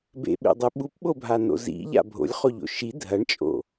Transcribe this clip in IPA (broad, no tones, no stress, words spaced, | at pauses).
bḛɓḛdˤɨ ɓupɓobʱano̰ zḭʎa̰ bʱo̰lʲχoʎo̰ ʃi dʱɐɳt͡ʃʼo̰